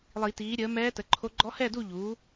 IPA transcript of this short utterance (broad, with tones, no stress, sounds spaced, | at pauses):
lˠ i˨˩˦ t iː˩˥ ɾʲ əː˩˥ m ɛː˧˥ t ə˩˥ ǃʰ o˧˥ ɡ͡ǃ ɔ˧˥ h ɛ˥˨ d u˥˨ ʎ uː˩˥